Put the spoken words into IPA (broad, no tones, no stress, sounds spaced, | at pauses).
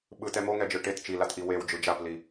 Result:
ɓ ɯ t ɛ m o ŋ ɛ d͡ʒ ɯ ʈ e t t͡ʃ i l a t ʔ i w e w d͡ʒ ɯ d͡ʒ a p l i